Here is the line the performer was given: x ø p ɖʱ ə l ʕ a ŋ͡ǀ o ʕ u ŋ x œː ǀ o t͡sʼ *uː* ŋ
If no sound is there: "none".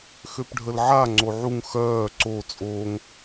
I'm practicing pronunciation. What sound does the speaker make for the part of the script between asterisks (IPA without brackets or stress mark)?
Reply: oː